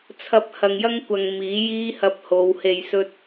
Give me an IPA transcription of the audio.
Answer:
t͡sʰ ɐ˧ p̚ h ɐ˨ ŋ j ɐ˥ ŋ kʷ ɐ˨ ŋ m iː˨˥ j iː˥ h ɐ˧ p̚ h o˨˧ w h e˨ j s ɵ˧ t̚

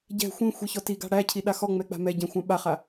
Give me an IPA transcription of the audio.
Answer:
ɟ ɛ̤ xʷ ĩ xʷ i ç ɔ t i ɡ a̤ ɽ æ cʰ i ɗ a x ɔ ŋ͡m ɛ k͡p a̤ m ɛ ɟ ã xʷ ã ɓ a χ a

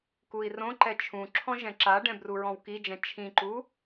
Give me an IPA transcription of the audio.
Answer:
k u i̯ r õ ǃ ɛ t͡ʃʰ ũ ǁʰ ɔ̃ ʒ ɛ̃ ǁ a ɖ ɛ̃ b r u ɹ ɔ̃ w k i d͡ʒ ɛ̃ t͡ʃʰ ĩ ǃ u

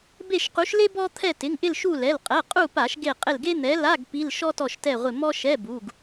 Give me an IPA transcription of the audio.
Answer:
b e˦˨ ʃ q u˨˥ ʃ l e˥ b ɔ˥ t̪ʰ ɛ˦˨ t ɪ˩˧˩ ŋ ʔ ɪ˦˨ l ʃ u˦˨ l ɛ˩˧˩ l qʼ ɛ˩˧˩ qʼ u˦˨ p a˧˩˧ ʃ ɡ e˦˨ qʼ ɪ˦˨ l ɡ e˥ n̪ ɛ˨˥ l a˧˥˧ ɡ p i˧˥˧ l ʃ ɔ˥ t ɔ˦˨ ʃ t ɛ˦˨ ʁʷ ɪ˦˨ m ɔ˥ ʃ ɛ˧˥˧ b u˩˧˩ ɡ

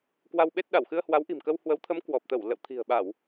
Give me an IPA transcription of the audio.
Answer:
k w a˧ w ɓ e˦˥ t̚ ɗ a˧˩ w x ɨ˧ ə̯ h w a˨˦ w ʔ i̤˨˩ m k ə˧ w h w ə˨˦ w t̪ʰ ə˨˦ m k w ɔ˨˩ p̚ t̪ ə˧˩ w l ə̰˧˨ w t̪ʰ i̤˨˩ ə̯ ɓ a˧˩˨ w

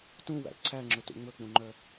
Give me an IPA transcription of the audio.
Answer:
t ũ w æ̰ ǀʰ æ ŋ͡ǁ ɵ t ṵ ŋ͡m ɵ k͡p ũ ŋ͡ǃ œ

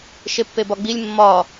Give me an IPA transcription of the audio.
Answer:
ʃ e pː e b ɒ ɡ͡b i lʲ mː ɒ

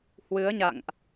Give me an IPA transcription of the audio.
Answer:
h w ɨ˨˦ ə̯ ɲ a̰˧˨ ŋ ʔ

